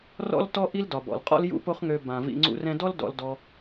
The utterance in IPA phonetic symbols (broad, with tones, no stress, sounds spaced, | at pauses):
r ɔ̰˦ l t ɔ˦ ʔ i˦ l d ɒ˨ b ɔ̰˨ l qʼ ɔ̰˦ l j ṵ˦ p o˦ χ ŋ ø˧ b ã˨ v ḭ˧ ŋ͡ǀ ṵ˧ r ɛ̃˧ d ɔ˦ l d ɔ̰˧ l d ɔ˧